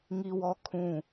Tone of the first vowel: high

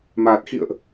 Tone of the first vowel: low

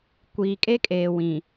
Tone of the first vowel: low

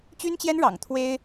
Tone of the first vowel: high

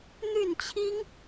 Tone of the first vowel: falling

